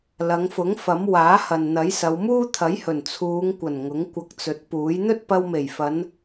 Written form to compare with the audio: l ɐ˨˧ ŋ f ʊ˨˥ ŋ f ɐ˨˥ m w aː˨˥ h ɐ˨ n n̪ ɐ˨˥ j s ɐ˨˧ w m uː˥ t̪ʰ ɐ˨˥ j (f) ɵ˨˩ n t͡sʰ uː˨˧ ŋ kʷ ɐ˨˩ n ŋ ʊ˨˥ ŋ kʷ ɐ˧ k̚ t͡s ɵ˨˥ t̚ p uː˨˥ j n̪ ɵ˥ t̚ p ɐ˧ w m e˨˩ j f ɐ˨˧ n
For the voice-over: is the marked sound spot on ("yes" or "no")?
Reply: no